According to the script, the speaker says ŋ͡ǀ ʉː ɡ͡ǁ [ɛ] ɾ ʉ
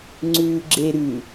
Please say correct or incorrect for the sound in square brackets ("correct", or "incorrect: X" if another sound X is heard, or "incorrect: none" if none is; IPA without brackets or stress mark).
incorrect: e